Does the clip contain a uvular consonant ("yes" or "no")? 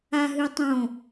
no